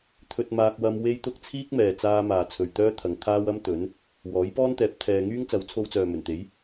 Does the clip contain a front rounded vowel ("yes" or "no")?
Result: yes